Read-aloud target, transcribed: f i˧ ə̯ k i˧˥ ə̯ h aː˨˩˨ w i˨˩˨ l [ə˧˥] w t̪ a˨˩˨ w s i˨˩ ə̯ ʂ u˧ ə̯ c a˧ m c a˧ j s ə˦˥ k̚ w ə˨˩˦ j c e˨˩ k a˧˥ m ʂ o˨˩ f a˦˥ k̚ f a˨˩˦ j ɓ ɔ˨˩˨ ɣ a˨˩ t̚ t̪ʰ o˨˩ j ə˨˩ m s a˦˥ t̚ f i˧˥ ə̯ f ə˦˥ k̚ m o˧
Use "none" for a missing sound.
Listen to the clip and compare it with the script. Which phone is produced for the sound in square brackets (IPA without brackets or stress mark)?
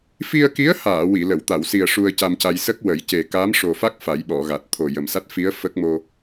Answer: ə˨˩˨